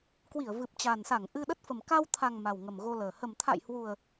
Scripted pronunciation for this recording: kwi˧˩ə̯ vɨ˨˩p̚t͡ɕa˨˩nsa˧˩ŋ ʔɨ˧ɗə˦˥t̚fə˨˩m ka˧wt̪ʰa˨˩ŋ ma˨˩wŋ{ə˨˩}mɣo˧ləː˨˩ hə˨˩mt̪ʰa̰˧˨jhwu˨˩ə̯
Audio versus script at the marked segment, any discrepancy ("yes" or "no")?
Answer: no